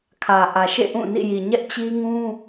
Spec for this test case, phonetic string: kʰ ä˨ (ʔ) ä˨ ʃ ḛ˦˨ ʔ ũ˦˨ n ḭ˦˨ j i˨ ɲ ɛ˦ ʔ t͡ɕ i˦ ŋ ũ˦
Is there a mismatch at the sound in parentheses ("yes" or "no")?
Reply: no